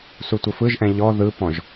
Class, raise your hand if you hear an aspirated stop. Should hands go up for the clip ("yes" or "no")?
no